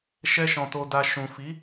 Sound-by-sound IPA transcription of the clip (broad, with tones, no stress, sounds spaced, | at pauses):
ʃ ɛ˧ ʃ ɔ̃˨ t o˨ d a˨ ʃ ũ˨ f i˨˦